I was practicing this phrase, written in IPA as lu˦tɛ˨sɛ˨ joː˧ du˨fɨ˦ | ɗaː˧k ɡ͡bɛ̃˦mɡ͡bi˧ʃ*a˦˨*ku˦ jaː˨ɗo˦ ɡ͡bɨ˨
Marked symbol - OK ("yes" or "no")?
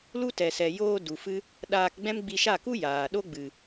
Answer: yes